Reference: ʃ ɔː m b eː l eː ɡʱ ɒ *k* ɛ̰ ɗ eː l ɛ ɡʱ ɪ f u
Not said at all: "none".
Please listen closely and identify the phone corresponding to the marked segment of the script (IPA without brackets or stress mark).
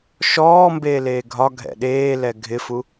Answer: ɡʱ